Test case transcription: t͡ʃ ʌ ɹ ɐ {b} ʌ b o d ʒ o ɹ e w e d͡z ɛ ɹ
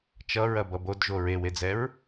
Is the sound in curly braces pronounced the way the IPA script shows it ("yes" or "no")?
yes